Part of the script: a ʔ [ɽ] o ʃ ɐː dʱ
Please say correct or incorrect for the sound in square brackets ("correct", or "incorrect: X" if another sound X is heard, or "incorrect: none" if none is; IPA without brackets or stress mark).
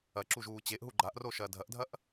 incorrect: r